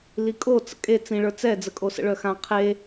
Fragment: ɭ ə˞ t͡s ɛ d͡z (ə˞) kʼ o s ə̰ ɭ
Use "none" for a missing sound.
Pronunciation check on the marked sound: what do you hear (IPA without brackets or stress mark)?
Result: ə